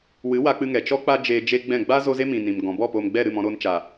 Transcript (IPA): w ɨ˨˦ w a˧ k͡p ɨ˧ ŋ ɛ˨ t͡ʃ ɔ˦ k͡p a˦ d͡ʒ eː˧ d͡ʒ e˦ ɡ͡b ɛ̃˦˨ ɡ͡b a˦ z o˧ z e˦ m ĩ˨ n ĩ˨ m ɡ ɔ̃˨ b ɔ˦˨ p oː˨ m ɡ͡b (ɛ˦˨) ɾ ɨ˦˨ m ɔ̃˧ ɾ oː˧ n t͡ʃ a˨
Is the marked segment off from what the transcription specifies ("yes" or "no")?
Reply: no